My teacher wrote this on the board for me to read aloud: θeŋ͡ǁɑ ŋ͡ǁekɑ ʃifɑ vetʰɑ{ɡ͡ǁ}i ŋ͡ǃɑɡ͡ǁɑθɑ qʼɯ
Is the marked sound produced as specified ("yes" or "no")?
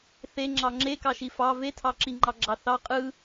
no